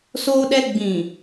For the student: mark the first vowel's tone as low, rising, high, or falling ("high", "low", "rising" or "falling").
high